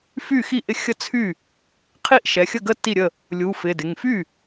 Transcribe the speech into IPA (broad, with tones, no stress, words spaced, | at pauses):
fy˥˩xi˥˩ʔɪ˦ xʲə˥˩t͡sʰy˥˩ | qʰi˥˩ʔʃɛ˩˧˩xʲə˥˩ɡə˥˩ ti˥˩ɾʲə˥˩ | lʲu˩˧˩fɪ˩˧˩dɪ˩˧˩ŋ fy˥˩